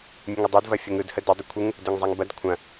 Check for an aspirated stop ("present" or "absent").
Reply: present